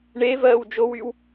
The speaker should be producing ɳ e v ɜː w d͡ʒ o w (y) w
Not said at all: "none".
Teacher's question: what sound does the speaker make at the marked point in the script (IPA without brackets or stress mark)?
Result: y